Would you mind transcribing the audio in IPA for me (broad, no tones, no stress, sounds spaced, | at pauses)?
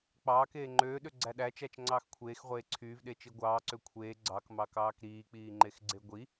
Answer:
k͡p ɑː k eː ŋ͡ǃ øː ɗ ø ɡ͡ǀ æ ɗ æ t͡ʃ æ t͡ʃ ŋ͡ǀ ɑː x kʷʰ eː x ʁʷ eː ǀʰ yː v ɗ e t͡ʃ i ɡʷ ɑː ǀ ø kʷʰ eː ɡ͡ǀ ɑ k m ɑ k ɑː k ɾ iː k͡p iː ŋ͡ǃ e x ɡ͡ǀ e ɡʷ i